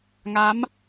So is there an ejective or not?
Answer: no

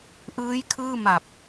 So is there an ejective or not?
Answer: no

